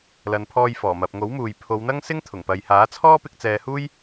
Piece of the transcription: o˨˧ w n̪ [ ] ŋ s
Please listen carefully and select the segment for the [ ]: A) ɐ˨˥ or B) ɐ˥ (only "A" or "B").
B